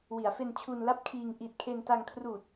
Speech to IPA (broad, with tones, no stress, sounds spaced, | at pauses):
w i˩˦ a̯ f e˧ n t͡ɕʰ u˧ n l a˥˩ p̚ kʰ iː˧ ŋ ʔ i˨˩ t̚ kʰ e˧ n t a˧ ŋ kʰ r uː˨˩ t̚